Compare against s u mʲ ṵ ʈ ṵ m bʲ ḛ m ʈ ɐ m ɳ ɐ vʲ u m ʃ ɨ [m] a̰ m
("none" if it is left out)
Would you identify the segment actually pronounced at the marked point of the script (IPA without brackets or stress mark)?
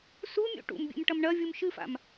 f